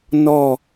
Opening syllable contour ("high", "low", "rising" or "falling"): falling